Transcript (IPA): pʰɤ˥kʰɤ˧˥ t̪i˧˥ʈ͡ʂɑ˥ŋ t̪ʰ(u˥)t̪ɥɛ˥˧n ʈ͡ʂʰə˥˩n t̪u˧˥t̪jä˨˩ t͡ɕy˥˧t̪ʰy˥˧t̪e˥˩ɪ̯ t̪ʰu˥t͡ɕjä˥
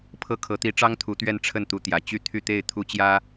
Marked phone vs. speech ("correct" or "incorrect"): incorrect